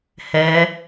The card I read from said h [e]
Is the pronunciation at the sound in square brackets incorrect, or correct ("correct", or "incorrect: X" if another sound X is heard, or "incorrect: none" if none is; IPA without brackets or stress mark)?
incorrect: ɛ